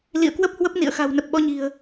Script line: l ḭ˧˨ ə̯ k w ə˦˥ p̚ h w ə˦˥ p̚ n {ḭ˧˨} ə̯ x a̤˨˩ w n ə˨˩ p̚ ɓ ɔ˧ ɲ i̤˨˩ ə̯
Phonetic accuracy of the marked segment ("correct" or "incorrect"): correct